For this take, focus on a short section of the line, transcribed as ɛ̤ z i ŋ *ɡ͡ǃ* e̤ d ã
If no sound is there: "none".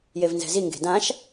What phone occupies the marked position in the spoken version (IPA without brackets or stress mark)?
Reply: ɡ